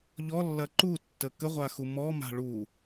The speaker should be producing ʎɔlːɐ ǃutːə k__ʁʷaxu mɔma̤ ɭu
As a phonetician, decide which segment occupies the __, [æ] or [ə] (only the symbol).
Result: ə